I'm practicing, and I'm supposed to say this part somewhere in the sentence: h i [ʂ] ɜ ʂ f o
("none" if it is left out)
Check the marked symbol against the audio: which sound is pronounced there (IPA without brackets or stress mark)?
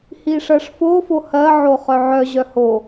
ʂ